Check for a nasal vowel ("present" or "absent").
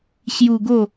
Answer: absent